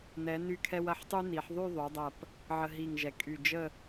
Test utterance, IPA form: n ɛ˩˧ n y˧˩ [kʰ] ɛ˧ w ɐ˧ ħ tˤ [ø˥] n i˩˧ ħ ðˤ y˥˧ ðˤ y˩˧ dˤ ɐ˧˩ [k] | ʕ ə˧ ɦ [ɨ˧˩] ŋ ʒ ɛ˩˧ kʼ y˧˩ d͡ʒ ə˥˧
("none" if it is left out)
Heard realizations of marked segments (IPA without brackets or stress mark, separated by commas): kʰ, y˥, p, i˧˩